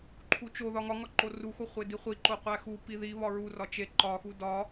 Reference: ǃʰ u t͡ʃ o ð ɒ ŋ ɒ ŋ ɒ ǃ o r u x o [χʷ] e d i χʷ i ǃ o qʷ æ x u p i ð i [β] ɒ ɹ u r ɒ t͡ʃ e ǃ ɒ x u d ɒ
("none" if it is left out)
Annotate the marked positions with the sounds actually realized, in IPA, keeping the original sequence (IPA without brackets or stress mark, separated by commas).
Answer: χʷ, β